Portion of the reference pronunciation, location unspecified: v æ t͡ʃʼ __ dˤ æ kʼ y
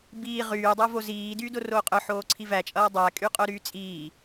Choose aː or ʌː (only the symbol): ʌː